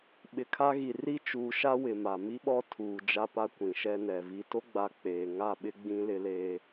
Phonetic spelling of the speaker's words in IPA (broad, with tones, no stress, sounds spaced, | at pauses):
ɓ ɪ˨ kʰ a˦ ɣ i˨ r i˦ t͡ʃ uː˨ ʃ a˦ w ɪ˨ m a˨ m i˦ ɓ ɔ˦ tʰ uː˨ d͡ʒ a˦ p a˦ kʷ ĩ˨ ʃ ɛ˦ n ɛ˨ v i˨ t o˦ ɡ͡b a˨ k͡p eː˨ ŋ a˦˨ ɓ ɪ˦ ɡ͡b ĩ˦ l ɪ˦ l eː˦